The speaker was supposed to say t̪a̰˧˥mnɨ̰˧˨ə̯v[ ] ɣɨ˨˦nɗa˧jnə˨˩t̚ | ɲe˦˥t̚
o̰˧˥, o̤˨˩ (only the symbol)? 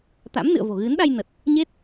o̤˨˩